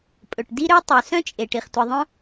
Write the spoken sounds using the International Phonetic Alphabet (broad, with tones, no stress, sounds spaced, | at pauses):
pʼ ɵ˩ ʈ d i˥ ɾ ø˥ tˤ ʉ˩ s œ̃˥ t͡ʃʼ e˩ ʈ i˩ χ tʷ i˩ ðˤ œ̃˥